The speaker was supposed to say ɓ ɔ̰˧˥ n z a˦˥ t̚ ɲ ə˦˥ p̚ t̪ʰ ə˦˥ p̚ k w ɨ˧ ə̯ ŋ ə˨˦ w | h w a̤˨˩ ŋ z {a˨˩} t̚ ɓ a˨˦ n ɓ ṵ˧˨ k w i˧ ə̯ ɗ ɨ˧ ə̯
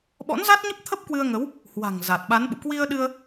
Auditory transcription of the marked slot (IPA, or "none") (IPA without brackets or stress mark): a˨˩